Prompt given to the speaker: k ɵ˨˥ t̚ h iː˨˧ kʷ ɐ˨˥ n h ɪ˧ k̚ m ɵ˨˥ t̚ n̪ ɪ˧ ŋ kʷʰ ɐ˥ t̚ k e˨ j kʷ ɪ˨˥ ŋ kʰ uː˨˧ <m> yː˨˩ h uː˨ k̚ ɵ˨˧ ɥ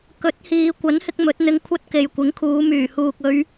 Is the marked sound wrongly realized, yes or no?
no